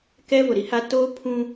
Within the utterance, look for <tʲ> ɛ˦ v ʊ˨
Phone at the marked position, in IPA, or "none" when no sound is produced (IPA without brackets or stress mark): k